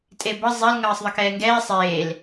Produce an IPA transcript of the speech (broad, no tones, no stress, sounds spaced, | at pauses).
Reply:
tʼ e b ʌ zˤ ɛ l ŋ ʌː sˤ ðˤ ʌ k ɛː ŋ ɡ ɛː sˤ eː l